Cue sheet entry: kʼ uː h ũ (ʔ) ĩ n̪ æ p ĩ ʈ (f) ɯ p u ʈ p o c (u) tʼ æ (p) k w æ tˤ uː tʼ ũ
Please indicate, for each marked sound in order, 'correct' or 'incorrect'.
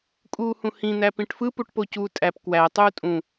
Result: incorrect, correct, incorrect, correct

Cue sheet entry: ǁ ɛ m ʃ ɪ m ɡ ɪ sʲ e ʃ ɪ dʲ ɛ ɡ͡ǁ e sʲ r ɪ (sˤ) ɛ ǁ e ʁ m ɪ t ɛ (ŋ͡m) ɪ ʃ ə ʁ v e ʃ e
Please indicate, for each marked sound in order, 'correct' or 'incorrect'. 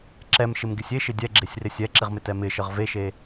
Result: incorrect, incorrect

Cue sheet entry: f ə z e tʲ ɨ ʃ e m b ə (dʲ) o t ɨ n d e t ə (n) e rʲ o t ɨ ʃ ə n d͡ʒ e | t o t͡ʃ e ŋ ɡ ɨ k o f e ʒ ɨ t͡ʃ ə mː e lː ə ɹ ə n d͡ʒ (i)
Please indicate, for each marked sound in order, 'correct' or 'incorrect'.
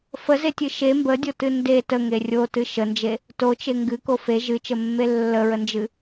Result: correct, incorrect, incorrect

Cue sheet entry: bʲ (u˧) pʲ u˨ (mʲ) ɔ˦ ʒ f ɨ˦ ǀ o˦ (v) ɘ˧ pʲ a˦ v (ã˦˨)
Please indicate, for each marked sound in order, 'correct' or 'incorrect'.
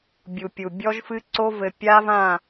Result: incorrect, incorrect, correct, correct

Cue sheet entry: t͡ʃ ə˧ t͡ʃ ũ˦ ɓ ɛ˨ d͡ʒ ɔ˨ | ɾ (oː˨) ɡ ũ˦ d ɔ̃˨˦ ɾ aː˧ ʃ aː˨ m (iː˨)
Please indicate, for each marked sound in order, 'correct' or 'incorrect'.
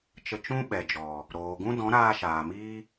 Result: correct, incorrect

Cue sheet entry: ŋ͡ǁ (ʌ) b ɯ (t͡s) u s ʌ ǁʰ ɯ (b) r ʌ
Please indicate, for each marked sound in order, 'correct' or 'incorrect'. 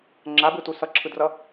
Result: incorrect, incorrect, incorrect

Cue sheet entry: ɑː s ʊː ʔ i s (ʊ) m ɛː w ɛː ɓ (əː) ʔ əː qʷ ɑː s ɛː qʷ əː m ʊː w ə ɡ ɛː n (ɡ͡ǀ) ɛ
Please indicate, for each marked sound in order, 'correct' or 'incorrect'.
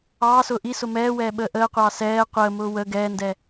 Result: correct, correct, incorrect

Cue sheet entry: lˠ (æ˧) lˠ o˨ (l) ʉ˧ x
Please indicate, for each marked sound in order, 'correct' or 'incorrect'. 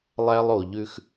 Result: correct, incorrect

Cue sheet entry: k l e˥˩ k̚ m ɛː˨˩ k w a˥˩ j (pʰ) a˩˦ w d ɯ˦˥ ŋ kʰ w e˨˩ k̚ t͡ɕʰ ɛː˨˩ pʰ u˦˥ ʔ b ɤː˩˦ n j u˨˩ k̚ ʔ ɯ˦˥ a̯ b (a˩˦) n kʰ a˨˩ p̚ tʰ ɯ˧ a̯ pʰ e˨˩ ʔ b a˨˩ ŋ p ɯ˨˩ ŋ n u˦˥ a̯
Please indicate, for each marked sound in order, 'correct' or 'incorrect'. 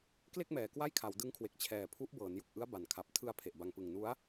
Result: incorrect, incorrect

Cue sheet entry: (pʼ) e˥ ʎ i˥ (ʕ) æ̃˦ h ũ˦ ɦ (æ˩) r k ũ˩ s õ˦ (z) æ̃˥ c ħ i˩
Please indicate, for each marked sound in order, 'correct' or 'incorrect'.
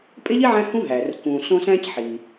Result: correct, correct, correct, incorrect

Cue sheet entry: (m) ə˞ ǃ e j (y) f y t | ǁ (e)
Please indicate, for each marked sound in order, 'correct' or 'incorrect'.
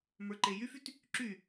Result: correct, correct, incorrect

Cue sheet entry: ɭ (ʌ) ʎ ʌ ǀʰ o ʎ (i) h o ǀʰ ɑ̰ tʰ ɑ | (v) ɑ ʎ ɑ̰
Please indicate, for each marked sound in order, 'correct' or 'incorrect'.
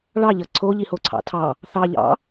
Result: incorrect, correct, incorrect

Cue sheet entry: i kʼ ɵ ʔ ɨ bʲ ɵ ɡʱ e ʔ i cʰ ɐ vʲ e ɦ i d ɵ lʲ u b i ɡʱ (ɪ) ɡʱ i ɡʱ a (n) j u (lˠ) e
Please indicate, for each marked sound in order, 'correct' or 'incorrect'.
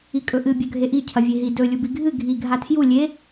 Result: incorrect, incorrect, incorrect

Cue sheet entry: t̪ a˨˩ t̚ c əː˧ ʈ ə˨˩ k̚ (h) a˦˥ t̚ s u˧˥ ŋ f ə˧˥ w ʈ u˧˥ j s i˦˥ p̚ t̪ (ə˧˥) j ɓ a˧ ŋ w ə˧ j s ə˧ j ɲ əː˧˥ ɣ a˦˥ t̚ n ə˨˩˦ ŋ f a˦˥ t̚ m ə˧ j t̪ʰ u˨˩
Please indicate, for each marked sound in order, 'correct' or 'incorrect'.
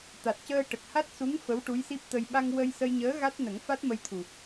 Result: correct, incorrect

